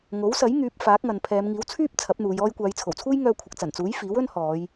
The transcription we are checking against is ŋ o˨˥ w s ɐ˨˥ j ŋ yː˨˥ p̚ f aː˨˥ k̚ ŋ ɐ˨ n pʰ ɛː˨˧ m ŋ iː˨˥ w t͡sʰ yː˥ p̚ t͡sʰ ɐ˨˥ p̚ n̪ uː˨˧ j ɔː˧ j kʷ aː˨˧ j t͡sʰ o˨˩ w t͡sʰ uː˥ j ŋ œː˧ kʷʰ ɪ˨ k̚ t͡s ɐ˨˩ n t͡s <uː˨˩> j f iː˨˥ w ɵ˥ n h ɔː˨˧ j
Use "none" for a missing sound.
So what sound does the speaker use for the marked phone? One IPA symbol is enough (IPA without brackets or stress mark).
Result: uː˨˥